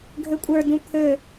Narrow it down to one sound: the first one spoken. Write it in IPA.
ɡʱ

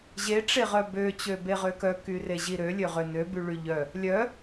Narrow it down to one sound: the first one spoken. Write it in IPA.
ʑ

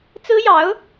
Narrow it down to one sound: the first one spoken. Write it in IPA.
t͡s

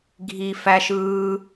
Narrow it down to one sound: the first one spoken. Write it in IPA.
ɡʱ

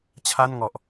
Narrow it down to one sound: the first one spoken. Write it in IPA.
t͡ɕʰ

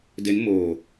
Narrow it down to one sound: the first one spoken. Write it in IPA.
d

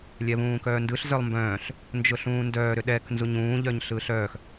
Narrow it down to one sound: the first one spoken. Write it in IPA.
lʲ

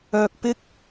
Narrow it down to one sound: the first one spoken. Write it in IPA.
œː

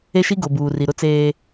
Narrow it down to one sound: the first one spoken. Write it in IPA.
e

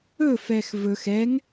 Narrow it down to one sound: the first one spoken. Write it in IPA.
ɵ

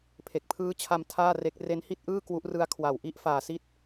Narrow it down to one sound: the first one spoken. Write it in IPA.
pʰ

